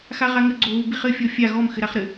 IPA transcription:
x a ʁ a ŋ ɘ ɡ͡ǀ o ɣ u b i χ ɘ fʲ ɔ fʲ a ɣ ɔ m x ɘ ɾ a χ ɾ ɘ

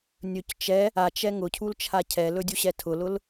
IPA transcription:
nʲ ɵ c t͡ʃ ɛ | a t͡ʃ ɛ ŋ ʊ cʰ u l t͡ʃʰ a cʰ ɛ l ɵ dʲ u ɕ ɛ tʰ ʊ l ʊ l

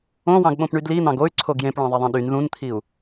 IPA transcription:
õ w ɑ̃ ɡ ɓ õ p ɳ y d l i n̪ ɑ̃ ɡ o y̯ ǀʰ o ɡ j ẽ p ɭ ɑ̃ ðˤ ɛ ðˤ ɛ̃ ɗ y n ð ũ n t̪ʰ i u̯

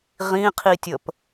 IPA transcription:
ʁ ĩ qʰ i tʲ ə p

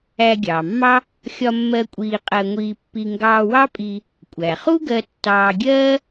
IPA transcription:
æ˧ ɡʲ ɑː˩ mː ɑ˥ | xʲ ɒ˧ mː ɜ˧ kʷʼ iː˧ qʼ ɜ˧ ŋʷ iː˧ pː i˧ ŋ ɡ ɑː˧ w ɑ˥ pʼ i˧ | kʷʼ æ˩ χ u˥ ɡ ɜ˧ tː ɑː˧ ɡʲ ɜː˥

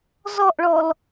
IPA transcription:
z ɔ ʔ ɭ ɔ l

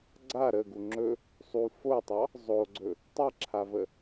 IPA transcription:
ɡ͡ǀ a ɾ ə ɡ u ŋ͡ǁ ɵ | sˤ u f o tˤ ɑ | zˤ o ɡ͡ǀ ɵ | tˤ ɛ ǁʰ a v ə

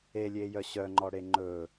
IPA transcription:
e lʲ e j œ ɕ œ ŋ͡ǃ ɔ ɽ e ŋ͡ǃ ɵ

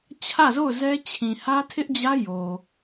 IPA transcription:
t͡ɕʰ ä˦˨ z o˦˨ ʊ̯ z ɛ˦ t͡ɕʰ ĩ˨ h ä˦ tʰ ɪ˦ ʔ d͡ʑ ä˦ j o˨

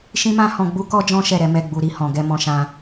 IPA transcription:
ʃ ĩ˦ m ã˦ h ɔ̃˧ ɡ͡b u˦ k ɔ˦ d͡ʒ ɔ̃˦ ʃ ɛ˦˨ ɾ ɛ˨˦ m ɛ˦˨ ɡ͡b u˧ ɾ i˧ h ɔ̃˨ ɡ ɛ˧ m ɔ̃˧ ʃ ã˧

